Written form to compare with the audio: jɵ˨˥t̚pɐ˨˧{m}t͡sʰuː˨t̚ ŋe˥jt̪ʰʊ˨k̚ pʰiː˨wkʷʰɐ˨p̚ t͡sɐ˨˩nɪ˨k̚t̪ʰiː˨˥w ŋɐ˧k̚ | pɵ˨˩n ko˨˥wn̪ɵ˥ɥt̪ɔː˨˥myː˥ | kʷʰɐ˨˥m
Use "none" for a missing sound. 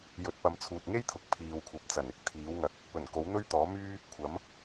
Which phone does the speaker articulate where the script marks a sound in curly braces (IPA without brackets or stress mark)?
m